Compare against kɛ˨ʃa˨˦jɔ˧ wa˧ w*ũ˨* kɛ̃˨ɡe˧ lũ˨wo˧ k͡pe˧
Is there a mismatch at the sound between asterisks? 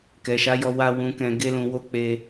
no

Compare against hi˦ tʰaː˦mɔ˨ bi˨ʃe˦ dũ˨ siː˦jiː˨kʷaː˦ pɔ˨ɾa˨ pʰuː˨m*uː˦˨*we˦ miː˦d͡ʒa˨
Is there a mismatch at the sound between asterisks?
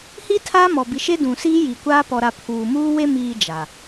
yes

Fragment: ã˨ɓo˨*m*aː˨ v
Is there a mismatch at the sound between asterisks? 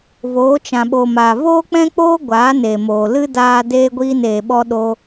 no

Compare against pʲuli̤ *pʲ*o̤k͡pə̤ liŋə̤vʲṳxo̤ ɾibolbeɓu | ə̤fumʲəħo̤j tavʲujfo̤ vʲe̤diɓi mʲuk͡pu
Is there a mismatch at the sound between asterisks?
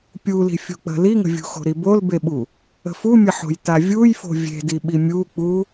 yes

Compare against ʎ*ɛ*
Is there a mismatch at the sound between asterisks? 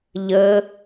yes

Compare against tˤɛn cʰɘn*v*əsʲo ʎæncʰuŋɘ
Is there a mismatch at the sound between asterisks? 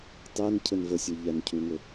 no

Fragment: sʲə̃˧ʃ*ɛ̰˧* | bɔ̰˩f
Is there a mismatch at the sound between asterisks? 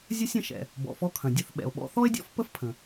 yes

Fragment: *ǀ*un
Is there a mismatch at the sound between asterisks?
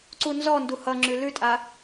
no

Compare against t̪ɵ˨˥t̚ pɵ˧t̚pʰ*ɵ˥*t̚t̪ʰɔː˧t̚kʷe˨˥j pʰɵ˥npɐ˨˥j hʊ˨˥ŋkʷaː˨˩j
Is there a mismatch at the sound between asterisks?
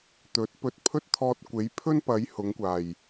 no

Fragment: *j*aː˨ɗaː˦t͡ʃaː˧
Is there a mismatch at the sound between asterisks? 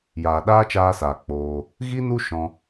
no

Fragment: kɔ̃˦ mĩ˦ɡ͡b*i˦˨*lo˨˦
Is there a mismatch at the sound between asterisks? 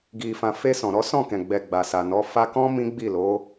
no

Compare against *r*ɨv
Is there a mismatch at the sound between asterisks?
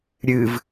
yes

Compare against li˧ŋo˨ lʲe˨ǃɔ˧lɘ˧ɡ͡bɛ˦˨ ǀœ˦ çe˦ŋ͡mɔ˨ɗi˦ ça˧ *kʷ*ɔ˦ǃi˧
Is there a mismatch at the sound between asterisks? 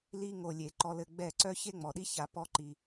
yes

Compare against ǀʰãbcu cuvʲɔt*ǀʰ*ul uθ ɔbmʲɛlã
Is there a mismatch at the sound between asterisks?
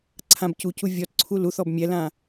no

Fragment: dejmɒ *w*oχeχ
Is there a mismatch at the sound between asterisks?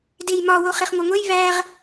no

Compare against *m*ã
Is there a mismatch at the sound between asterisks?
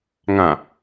yes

